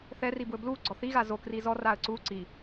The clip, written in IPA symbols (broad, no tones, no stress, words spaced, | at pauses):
θɛribwɵ bluɡ͡ǀɔ θiɣa zokri zɔraə̯ ǀu ǀi